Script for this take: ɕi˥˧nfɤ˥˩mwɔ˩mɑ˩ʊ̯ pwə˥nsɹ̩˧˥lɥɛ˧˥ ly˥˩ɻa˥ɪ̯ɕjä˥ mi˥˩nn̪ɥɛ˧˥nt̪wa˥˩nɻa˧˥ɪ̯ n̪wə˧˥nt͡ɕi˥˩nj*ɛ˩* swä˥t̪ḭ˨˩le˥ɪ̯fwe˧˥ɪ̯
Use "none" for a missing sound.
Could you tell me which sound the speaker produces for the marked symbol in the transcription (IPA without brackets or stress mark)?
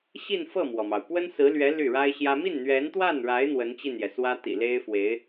ɛ˩